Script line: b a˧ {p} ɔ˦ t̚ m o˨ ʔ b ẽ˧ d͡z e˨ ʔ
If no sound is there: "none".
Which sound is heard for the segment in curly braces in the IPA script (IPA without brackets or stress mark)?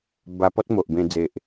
p